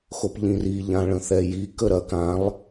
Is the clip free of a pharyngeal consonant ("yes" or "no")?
yes